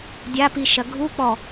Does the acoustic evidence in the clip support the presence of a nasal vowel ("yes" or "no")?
no